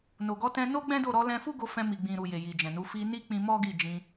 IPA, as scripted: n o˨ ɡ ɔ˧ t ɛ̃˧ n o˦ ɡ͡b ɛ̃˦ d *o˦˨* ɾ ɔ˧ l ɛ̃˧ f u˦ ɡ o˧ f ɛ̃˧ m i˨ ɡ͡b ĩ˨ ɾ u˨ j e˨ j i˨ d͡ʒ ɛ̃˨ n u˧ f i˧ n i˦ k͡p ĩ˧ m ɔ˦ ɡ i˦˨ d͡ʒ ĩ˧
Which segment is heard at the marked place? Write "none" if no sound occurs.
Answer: o˦˨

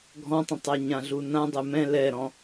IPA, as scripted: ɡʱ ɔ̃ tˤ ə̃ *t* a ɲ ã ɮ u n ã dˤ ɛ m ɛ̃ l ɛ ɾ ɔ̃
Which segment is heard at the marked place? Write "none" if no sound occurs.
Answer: tˤ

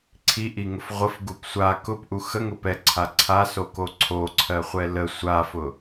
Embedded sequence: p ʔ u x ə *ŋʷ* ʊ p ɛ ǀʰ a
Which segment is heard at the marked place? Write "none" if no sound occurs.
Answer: ŋ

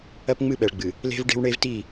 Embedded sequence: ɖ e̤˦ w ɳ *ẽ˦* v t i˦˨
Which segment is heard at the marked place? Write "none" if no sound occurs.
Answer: e˦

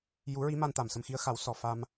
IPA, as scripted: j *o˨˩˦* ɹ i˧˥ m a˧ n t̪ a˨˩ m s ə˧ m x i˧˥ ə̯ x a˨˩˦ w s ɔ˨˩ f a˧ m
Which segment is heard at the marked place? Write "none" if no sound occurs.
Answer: u˨˩˦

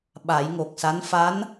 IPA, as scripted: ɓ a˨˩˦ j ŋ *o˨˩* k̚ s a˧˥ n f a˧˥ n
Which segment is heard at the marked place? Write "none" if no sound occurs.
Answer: o˨˩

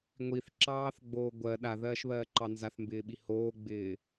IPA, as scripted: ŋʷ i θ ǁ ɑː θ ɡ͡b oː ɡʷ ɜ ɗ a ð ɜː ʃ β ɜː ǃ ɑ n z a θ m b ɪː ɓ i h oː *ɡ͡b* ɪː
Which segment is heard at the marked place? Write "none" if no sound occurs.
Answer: ɡ͡b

